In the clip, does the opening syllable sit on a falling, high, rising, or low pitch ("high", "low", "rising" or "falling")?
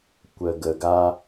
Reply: low